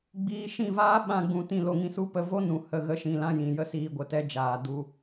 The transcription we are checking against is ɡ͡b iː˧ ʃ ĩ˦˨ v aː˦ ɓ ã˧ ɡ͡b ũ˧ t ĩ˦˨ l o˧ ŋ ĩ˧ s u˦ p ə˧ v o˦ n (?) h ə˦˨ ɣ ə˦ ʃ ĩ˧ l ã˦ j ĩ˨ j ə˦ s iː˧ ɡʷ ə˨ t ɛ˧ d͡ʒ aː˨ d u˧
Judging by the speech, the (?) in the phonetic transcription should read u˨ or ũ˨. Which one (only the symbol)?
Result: ũ˨